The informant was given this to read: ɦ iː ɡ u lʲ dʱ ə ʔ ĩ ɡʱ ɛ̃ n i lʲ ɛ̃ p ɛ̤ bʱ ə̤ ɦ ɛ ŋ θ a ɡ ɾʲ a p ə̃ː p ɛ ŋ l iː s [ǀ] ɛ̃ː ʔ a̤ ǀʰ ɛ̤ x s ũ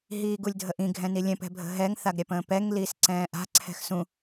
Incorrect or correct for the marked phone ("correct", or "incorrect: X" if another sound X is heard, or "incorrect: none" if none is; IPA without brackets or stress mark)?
correct